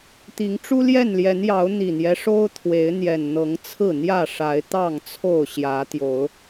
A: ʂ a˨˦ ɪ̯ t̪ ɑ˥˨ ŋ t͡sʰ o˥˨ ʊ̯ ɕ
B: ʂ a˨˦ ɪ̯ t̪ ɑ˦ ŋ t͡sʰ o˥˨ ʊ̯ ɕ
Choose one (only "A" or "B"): A